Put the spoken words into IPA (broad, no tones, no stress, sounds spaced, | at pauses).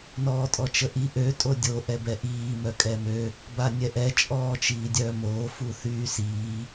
n ɔː tʼ ɔ t͡ʃ ə ʔ i ʔ ø tʼ o dʲ o ʔ ɛ b ɛ ʔ iː m œ kʼ ɛ m ø | b a nʲ ɛ ʔ ɛ t͡ʃʼ ɔː t͡ʃ iː dʲ œː m oː f u θ yː s iː